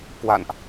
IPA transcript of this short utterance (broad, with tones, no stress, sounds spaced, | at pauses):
k w a̰˧˨ n ʔ